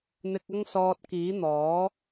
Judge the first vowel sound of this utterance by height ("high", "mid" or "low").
high